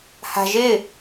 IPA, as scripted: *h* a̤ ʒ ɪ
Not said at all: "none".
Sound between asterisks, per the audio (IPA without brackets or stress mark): h